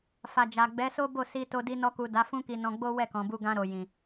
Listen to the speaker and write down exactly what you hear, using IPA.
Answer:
f a˨ d͡ʒ a˨ ɡ͡b ɛ˨˦ s o˦ b o˦˨ s i˧ t o˧ d i˧ n ɔ˧ k u˨ d a˨˦ f ũ˦ k i˧ n ɔ̃˧ ɡ͡b o˦ w ɛ˦˨ k ɔ̃˨ b u˧ ɡ ã˧ ɾ o˨ j ĩ˨

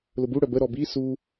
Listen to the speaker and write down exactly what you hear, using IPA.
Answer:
l ʊ b u ɽ œ b ə ɾ ɔ b i s u

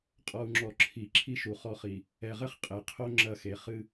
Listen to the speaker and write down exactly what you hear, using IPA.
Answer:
qʼ ɔ˨ u̯ ŋ͡ǁ ɔ˨ ǁʰ i˨ ǁʰ i˦ ʃ u˨ χ ɔ˦˨ χ i˨ | ɛ˨ ʁ ɘ˦ χ qʼ e˨ qʰ o˦ ŋ͡ǁ ɐ˦˨ x e˨ χ ɨ˦

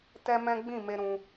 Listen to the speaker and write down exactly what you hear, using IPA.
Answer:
t ɛ˦ m ɛ̃˦ ɡ͡b ĩ˦˨ m e˧ ɾ ũ˧

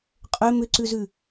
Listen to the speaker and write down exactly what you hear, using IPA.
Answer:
qʼ ø m ʏ ǀ ʉ z ʉ

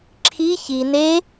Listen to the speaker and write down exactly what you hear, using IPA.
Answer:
ǁʰ i ç i n e

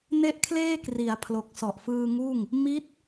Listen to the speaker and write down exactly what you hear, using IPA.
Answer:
n e˥˩ ʔ kʰ l eː˥˩ k r i˩˦ a̯ pʰ l o˨˩ k̚ s ɔ˨˩ ʔ f ɯː˧ ŋ uː˥˩ ŋ | m i˦˥ t̚

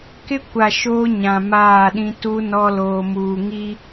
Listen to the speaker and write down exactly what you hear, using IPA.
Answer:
k ɪ˦ kʷ a˨ ʃ oː˦ ɲ ã˨ m aː˦˨ ɗ ĩ˦ t u˦ n ɔ˦ l oː˨ m uː˨ ŋ i˦

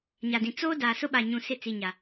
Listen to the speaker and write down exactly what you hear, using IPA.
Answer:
ɲ a˨ d ĩ˨ t͡s oː˦ d aː˨ s ʊ˦ ɓ a˨ ɲ ũ˨ s ɪ˦˨ t͡s i˨ ɲ a˨

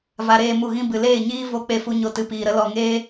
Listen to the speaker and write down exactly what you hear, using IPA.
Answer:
v a˧ ɾ eː˧ m u˨ ɣ ĩ˧ b ɨ˨ l eː˦˨ ɲ iː˦ v o˦˨ k͡p e˦ f u˦ ɲ o˧ t ɨ˨ p iː˨ ɾ ə˦ l ɔ˨ ŋ eː˦

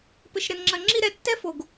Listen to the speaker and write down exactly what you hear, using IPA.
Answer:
p ɘ˧ ʃ ɾ ɘ˧ n ŋ͡ǁ ɐ˧ ŋ͡ǁ i˦ ɾ ɛ˧ tː ɛ˦ f o˨ ɡ

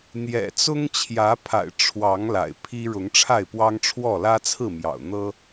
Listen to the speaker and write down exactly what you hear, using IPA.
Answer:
n̪ j ɛ̰˨˩ t͡s ʊ˦ ŋ t͡ɕʰ j ä˨˦ pʰ a̰˨˩ ɪ̯ ʈ͡ʂʰ w ɑ˨˦ ŋ l a̰˨˩ ɪ̯ pʰ i˦ ɻ ʊ˨˦ ŋ ʈ͡ʂʰ a˥˨ ɪ̯ p w ɑ˦ ŋ ʈ͡ʂʰ w ɔ˥˨ l ä˦ t͡sʰ ɹ̩˥˨ m j ɑ̰˨˩ ʊ̯ n̪ ɤ˦

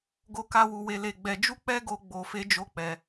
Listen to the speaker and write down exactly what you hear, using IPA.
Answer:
ɡ o˦ k a˦ w u˧ w e˧ l e˧ ɡ͡b ɛ˧ d͡ʒ u˦ k͡p ɛ˦ ɡ o˧ ɡ͡b o˧ f e˦ d͡ʒ o˦ k͡p ɛ˧

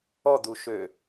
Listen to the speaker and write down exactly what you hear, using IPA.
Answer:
ɔ d̪ u ʃ ø

